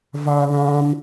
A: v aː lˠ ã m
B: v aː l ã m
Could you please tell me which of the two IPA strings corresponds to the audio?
B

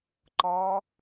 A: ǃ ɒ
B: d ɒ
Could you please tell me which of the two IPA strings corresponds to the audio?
A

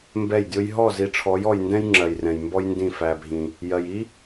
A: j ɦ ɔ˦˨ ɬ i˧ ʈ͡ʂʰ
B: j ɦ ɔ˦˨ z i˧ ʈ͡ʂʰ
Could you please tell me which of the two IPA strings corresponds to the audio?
B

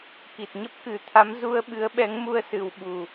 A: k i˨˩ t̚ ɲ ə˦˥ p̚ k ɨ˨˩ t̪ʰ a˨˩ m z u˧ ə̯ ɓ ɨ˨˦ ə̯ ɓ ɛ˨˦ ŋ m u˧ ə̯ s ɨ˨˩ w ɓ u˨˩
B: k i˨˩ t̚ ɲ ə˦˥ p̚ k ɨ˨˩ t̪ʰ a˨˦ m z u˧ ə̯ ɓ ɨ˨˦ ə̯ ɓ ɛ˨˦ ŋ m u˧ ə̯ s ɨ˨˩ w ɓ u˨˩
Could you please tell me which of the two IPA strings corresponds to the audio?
B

